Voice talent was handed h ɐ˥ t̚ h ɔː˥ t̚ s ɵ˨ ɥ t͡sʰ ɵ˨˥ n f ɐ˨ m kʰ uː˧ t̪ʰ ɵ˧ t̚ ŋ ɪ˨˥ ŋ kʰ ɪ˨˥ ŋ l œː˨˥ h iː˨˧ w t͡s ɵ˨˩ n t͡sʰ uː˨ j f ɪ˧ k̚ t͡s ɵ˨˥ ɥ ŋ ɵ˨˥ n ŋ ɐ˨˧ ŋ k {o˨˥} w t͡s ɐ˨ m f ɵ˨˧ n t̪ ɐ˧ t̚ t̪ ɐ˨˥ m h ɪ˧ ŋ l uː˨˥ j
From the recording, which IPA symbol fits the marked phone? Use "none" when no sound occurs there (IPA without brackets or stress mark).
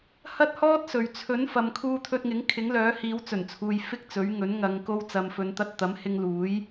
o˧